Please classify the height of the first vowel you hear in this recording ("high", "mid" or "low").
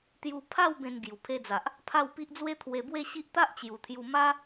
high